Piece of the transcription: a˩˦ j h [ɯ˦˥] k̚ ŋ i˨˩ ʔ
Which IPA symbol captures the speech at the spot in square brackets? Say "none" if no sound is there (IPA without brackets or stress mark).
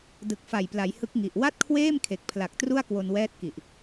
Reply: ɯ˦˥